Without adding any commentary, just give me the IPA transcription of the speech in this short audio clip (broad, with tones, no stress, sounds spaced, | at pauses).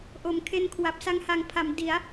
ʔ o˩˦ m kʰ e˧ n kʰ w a˨˩ p̚ s a˧ ŋ h a˨˩ ŋ pʰ a˩˦ m d i˩˦ a̯